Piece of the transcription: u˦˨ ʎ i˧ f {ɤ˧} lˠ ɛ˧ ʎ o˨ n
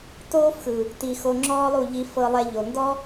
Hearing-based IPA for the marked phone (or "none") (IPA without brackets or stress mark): ɤ˧